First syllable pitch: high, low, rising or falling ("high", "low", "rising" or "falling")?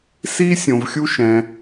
high